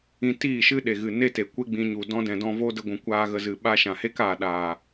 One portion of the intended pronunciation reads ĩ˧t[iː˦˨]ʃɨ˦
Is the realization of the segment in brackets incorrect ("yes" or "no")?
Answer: no